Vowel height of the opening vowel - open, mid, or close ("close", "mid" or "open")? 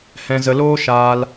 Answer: mid